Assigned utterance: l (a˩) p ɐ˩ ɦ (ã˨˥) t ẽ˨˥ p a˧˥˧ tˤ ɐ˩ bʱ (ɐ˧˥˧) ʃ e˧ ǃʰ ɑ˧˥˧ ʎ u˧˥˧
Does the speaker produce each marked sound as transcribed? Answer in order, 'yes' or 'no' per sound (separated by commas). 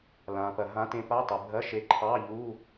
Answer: no, yes, yes